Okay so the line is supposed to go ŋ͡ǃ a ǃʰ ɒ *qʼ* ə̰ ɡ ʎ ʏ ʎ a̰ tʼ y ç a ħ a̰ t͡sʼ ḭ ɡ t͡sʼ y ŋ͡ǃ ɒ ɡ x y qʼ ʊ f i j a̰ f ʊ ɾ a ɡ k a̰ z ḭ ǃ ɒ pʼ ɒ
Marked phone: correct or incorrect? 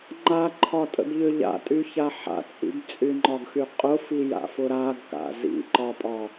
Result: incorrect